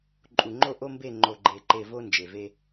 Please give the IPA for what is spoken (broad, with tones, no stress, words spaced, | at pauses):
ǃʼu˨ŋ͡ǃo˦ʔo˦mbe˦˨ ŋ͡ǃo˨ɡ͡ǃe˨ǃe˨ vo˦ nd͡ʒe˨ve˦